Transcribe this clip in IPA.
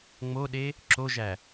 ŋ͡moɗe | ǁoʒæ

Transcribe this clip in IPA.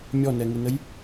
mʲɔnɛŋɪnəj

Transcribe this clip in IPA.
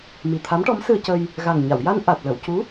mi˨˩t̪ʰa˧˥mʈɔ˧˥m sɨ˧ə̯cə˧j | ɣa˨˩ŋ ɲa˨˩˨wja˧n ʔa˨˩t̚ lə˨˩˨wcu˧˥

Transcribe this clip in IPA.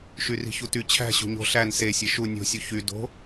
ʃyri̤çuty t͡ɕʰæ̤ ɕo̤ɲo̤ ɬæn se sʲeʃu nʲo̤ sʲuçy do̤

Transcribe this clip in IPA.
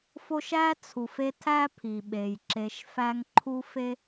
fo˦ʃæ˥ t͡sʰu˩f e˦ tʰæ˦ pʰi˩ɓe˩jǁe˨ʃ fæ˦ŋǃʰu˥ fe˥

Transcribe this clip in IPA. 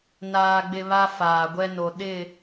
naː˦ɡ͡bɪ˦ βa˦faː˨ɡʷɛ˦no˨ ɗɪ˦˨

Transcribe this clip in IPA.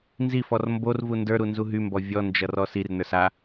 nzifɔr mborvu ndə˞ɾunzu ɦymbɔ vʲɔnd͡ʒʌrɔs irnə˞s a

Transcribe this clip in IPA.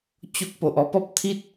t͡ɕo˦k̚po˨ʔɔ˥˧ pɔ˦p̚t̪ʰi˦t̚

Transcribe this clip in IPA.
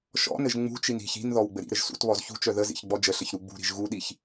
ʃɔ̰nɘʒ ŋ͡mṳt͡ʃin i̤ç i̤nðɔw ɡ͡bɘɾḭɾɘʒ sṵtβɔz çṳt͡ʃœ ðəzḭç ɡ͡bɔd͡ʒəɬɘç ɾuɡ͡bṳɾi̤ʒ ɣuɗiç

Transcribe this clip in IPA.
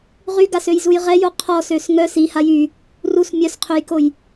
ʁyɡasøjzuj ʁɛjo qʰɔsøs ŋœs ihaj y | rus mʲœsqʰøjkoj

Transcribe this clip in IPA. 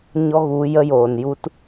ɲɔ˦ɣu˨˦ jə˦joː˨n ju˦t

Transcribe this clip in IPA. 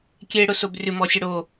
kʲeɽʊsob rʲʊmɔsʲʊ ɽo

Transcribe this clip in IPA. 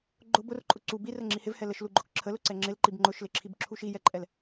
ɡ͡ǃʊ bʊrǃʼʊ ǀu birə ŋ͡ǁihɪvhɛ ləʃluɡ͡ǃʊk ǁʰəlʊ ǀɛŋ͡ǁɪlǃib ŋ͡ǃʊʃlɪǁʰib ǁʰuʃijɛǃʼɛl

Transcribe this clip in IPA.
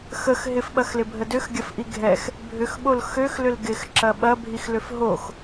xəx ɦɪfɓɐxlɪbʱə døxɡʲɐfʔi ɡʱɛx | bʱʏxɓol xøxlʏl ɡɪxǁɐ ɓɐbʱixlʏf ɦox

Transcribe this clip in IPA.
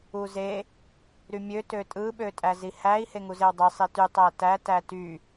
uze | ɾymʲø tøtʼɯ ɓøtʼæzihæi̯ heŋuzewdˤɯ sˤity tˤætæ tæty

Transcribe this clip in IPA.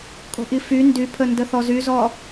kʼo̤ʔify ndypʰə ndəθɔzyzɔ

